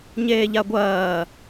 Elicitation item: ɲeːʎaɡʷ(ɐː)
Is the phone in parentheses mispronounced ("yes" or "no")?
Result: no